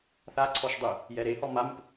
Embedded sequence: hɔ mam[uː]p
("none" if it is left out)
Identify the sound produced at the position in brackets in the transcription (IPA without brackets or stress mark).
u